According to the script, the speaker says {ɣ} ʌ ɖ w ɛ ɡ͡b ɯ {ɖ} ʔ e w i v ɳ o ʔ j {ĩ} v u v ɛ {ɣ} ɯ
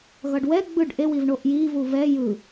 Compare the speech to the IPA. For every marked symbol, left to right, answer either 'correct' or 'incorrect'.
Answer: correct, correct, incorrect, incorrect

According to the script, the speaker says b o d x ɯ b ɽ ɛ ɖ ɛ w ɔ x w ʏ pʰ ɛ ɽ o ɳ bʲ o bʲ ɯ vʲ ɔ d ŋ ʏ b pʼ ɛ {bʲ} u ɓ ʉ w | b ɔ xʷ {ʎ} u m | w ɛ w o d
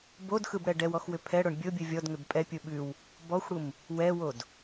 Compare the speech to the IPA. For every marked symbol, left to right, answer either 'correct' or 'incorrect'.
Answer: incorrect, incorrect

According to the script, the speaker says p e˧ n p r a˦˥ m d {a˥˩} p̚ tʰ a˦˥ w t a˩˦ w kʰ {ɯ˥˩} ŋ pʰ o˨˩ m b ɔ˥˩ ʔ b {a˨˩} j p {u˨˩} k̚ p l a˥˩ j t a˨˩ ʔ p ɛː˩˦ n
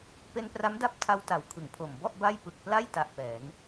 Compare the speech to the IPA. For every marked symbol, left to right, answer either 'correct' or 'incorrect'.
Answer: incorrect, incorrect, incorrect, incorrect

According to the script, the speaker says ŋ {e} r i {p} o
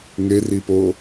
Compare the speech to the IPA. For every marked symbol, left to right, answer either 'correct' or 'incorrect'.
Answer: correct, correct

